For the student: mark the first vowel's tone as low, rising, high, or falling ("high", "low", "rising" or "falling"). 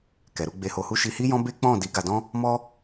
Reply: low